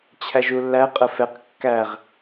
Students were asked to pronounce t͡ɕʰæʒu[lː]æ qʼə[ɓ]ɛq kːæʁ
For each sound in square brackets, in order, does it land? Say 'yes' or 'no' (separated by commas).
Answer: yes, no